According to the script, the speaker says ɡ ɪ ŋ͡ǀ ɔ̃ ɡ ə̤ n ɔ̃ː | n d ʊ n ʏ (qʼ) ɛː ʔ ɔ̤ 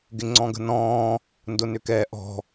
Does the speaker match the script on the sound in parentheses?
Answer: no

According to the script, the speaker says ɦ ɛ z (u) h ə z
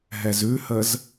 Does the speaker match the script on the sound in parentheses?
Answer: no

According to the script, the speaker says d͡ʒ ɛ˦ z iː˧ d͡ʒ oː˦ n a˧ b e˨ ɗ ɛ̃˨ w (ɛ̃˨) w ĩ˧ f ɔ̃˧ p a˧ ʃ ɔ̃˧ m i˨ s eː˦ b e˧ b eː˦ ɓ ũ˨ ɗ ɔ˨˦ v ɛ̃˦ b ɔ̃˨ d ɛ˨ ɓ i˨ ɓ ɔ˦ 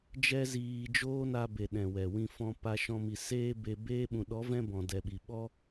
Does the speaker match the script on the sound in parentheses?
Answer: no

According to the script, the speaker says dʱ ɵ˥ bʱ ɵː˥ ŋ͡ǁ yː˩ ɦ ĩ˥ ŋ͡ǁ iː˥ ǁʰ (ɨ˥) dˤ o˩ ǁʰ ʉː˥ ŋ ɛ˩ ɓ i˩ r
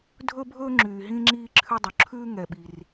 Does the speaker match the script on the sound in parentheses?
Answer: no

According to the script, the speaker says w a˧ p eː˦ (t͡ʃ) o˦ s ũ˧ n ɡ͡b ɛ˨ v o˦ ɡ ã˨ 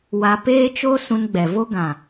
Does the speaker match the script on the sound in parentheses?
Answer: yes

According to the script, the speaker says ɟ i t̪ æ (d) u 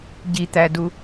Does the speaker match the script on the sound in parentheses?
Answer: yes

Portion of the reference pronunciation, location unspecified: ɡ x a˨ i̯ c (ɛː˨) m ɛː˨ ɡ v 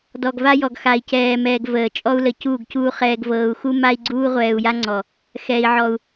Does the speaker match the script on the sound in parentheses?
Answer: yes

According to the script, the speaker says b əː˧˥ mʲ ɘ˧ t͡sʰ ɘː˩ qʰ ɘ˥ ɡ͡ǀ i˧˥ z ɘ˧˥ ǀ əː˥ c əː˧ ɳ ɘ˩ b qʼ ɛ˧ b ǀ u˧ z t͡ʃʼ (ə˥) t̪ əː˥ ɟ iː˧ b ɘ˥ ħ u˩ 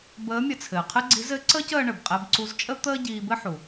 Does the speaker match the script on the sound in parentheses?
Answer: yes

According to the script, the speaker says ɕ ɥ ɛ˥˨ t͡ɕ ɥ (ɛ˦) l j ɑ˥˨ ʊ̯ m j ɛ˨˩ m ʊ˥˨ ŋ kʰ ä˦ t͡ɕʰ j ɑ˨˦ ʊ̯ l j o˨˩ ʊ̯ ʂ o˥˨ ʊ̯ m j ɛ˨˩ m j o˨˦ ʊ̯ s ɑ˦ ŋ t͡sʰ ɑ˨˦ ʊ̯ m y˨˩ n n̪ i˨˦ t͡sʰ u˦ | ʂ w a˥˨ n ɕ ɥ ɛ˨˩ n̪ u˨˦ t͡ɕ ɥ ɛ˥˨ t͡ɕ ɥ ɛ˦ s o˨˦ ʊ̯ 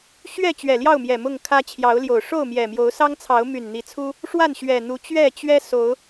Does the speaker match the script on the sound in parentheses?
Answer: no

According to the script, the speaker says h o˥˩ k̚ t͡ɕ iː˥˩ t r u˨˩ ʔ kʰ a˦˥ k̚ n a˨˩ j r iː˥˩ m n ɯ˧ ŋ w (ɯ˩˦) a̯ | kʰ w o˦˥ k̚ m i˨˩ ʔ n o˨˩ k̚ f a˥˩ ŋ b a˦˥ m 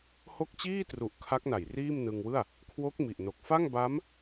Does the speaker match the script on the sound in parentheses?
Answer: no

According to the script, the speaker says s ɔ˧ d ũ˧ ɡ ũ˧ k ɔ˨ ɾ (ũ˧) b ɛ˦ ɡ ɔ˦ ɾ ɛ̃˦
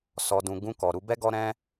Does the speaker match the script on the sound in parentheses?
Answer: no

